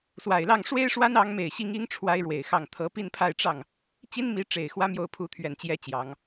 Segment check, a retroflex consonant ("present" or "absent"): present